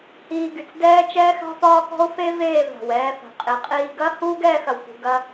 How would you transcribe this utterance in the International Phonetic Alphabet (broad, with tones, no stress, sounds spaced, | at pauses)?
h iː˧ ɡ y˨ t͡s d ɛː˧ t͡ʃ ɛː˧ x a̤˧ f ɒː˧ k ɔ̤˧ o̯ f e˧ v eː˦˨ v a̤˨ w ɛː˧ f a̤˨ qʼ i˨ qʼ iː˧ ɡ ɐ˦ h uː˦ ɡ ɛː˧ x ɐ˨ w k ṳ˨ ɡ ɐ˦